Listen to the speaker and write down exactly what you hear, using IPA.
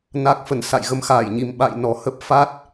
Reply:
n a˦˥ k̚ f ə˧˩ n s a̰˧˨ j ɣ ə˧ m x aː˧˩ j ɲ i˨˩ m ɓ a̰˧˨ j n ɔ˨˩ h ə˦˥ p̚ f a˦˥ t̚

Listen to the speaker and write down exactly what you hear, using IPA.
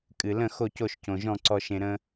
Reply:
kʼ ɨ˨ l ə̃˥˨ x o˥˨ c o˥˨ ʃ c õ˨ ʒ ɔ̃˥˨ ǀ ɔ˦ ʃ ẽ˦ ɾ ə̃˦

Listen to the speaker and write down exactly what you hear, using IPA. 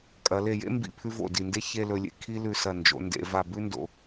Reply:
kʼ ɐ˩˧ l e˧˩ j ḛ˥ m b ḭ˧˩ pʰ ʉ˧ v o̰˧˩ d i˧˩ n d e˥ ç e˥˧ l ɵ˧ lʲ ḛ˧˩ kʰ i˥ l ʉ˧˩ s ɐ˧˩ n d͡ʒ o̰˩˧ n d ḛ˩˧ v a˧˩ b ʉ˥ n d o̰˩˧

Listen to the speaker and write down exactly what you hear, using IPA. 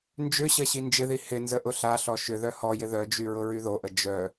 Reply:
n d͡ʒ ʏ ɕ ɐ ɕ i n d͡ʒ ɪ ð i h ɪ n z ə ʔ ʊ ɬ a ɬ ɔ ʃ ʏ ð œ h ɔ j ɪ ð œ d͡ʒ y ɹ ʊ ɹ y ð o ʔ ə d͡ʒ œ

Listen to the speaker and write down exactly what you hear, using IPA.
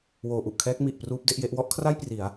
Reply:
w oː˩˦ ʔ u˨˩ ʔ kʰ ɛː˦˥ k̚ m i˨˩ ʔ p r uː˦˥ p̚ d e˦˥ ʔ j e˦˥ ʔ w ɔ˦˥ ʔ kʰ r a˥˩ j p r i˩˦ a̯

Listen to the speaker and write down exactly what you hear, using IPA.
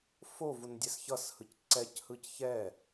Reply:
f o v u n dʲ ɛ s ç ʌ s h ɯ c ǀ ɛ c h ɯ c ç ɛ

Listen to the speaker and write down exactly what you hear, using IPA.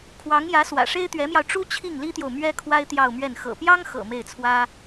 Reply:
kʰ w ɑ˧˥ ŋ j ä˧˥ s w ä̰˨˩ ʂ e˥ ɪ̯ t̪ ɥ ɛ˧˥ m j ɑ˧ ʊ̯ ʈ͡ʂ u˥ t͡ɕʰ i˥˩ ŋ l i˥ t̪ j o˨ ʊ̯ m ɥ ɛ˥ kʰ w a˥ ɪ̯ t̪ j ɑ˥˧ ʊ̯ m ɥ ɛ˥˩ n x ɤ̰˨˩ p j ɑ˥ ŋ x ɤ̰˨˩ m e˥˩ ɪ̯ t͡sʰ w ä˥

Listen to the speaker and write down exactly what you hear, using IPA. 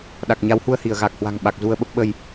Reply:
ɗ a˨˩ k̚ ɲ a˨˦ w h u˧ ə̯ h i˧˩ ə̯ ɣ a˨˩ k̚ h w a̤˨˩ ŋ ɓ a˨˩ k̚ z u˧ ə̯ ɓ ə˦˥ p̚ ɓ ə˧ j

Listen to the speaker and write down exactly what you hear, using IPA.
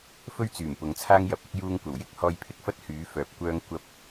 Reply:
f ɵ˥ ɥ t͡s yː˨˩ m p ʊ˨˧ ŋ t͡sʰ aː˥ ŋ j ɐ˨˥ p̚ ɪ˥ k̚ j uː˧ ŋ kʷ ɐ˨˩ w j ɪ˥ k̚ h ɔː˧ j pʰ ɪ˥ k̚ f ɐ˥ t̚ h yː˨˥ f œː˨˥ p̚ kʷ œː˧ ŋ kʷ ɐ˧ p̚

